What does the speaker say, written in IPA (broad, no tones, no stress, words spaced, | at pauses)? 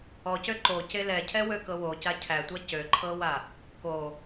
ɔcø ǃoce lɛcʰɛwøkɤ woca cʰætʷa cøǃʰɤwa | ko